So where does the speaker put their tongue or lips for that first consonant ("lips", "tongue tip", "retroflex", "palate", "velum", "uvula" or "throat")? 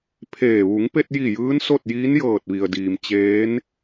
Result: lips